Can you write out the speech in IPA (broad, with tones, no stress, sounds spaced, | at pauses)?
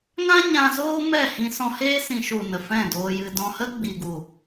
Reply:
ŋ ã˦ ɲ ã˧ z oː˦ m ɛ˦˨ h ĩ˧ s ɔ̃˧ h eː˦ s ĩ˧ ʃ u˨ n ə˨ f ɛ̃˦˨ d oː˧ j ɨ˧ d ɔ̃˧ h ə˦ ɡ͡b i˨ ɡ u˨